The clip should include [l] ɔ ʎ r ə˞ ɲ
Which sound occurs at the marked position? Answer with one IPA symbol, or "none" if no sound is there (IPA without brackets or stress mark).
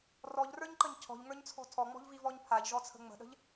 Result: r